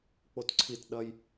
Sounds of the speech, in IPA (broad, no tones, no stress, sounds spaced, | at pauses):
k͡p o t ǀʰ i t ɗ ɐ j